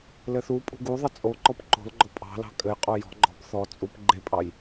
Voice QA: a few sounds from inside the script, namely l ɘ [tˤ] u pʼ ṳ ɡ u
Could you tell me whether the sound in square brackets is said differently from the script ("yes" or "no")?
yes